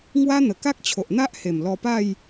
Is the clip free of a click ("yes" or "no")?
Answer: yes